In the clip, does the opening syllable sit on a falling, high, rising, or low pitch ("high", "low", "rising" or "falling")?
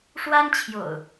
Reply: high